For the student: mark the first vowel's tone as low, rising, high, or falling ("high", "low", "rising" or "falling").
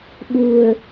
low